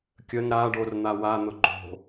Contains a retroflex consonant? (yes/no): yes